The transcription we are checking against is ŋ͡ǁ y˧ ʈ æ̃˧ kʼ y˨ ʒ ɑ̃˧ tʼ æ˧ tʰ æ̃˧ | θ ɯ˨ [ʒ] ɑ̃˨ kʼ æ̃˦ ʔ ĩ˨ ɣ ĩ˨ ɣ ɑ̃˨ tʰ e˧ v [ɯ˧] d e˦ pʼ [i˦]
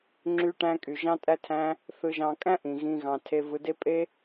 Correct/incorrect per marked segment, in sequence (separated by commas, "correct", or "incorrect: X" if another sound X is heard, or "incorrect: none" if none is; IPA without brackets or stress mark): correct, correct, incorrect: e˦